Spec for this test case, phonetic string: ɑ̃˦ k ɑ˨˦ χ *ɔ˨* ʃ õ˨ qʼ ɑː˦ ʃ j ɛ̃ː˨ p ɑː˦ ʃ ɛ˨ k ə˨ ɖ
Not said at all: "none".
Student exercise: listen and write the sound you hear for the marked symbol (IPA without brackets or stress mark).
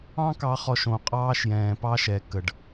ɔ˨